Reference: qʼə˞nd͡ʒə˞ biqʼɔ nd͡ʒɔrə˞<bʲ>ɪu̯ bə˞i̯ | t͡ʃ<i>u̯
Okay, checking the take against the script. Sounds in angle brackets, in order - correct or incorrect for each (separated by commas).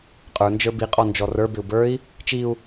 incorrect, correct